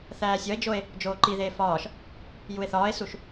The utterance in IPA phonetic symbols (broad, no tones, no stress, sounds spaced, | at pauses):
θ æː sʲ ɒ e̯ d͡ʒ o e̯ | d͡ʒ oː ǃ i ð eː f ɒː ʃ | j u e̯ θ ɒː e̯ s u ʃ